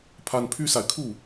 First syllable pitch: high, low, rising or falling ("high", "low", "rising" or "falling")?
high